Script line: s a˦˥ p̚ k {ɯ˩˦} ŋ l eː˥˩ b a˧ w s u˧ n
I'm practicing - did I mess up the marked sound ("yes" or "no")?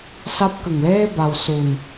yes